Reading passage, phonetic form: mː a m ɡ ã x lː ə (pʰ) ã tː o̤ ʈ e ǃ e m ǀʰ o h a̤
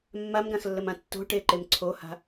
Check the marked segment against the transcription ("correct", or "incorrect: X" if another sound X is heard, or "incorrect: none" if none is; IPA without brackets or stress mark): incorrect: m